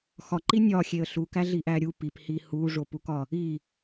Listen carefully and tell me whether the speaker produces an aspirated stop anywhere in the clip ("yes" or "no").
no